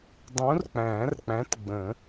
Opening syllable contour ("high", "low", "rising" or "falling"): rising